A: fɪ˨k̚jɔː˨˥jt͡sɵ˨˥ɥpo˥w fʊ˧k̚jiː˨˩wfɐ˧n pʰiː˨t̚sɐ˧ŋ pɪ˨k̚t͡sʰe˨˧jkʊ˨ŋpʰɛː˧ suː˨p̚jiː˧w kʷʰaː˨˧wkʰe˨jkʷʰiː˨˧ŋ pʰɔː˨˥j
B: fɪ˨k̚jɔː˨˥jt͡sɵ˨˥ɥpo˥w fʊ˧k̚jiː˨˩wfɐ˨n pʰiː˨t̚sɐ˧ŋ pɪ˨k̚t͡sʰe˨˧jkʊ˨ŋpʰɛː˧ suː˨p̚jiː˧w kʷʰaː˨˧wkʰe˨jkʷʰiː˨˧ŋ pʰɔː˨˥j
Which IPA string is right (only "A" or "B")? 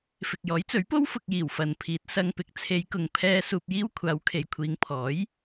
B